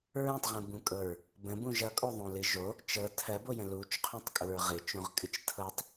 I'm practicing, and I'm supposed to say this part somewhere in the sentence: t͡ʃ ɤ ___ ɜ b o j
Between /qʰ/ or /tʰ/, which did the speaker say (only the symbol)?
tʰ